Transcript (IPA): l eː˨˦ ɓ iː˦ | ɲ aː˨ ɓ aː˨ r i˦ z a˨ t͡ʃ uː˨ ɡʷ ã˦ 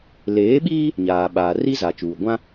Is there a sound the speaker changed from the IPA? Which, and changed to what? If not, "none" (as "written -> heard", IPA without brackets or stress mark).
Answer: none